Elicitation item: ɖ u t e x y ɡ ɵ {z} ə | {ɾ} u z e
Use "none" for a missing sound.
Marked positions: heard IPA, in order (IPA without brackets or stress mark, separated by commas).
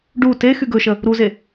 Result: ʃ, ɾ